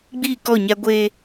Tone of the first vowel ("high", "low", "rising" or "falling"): falling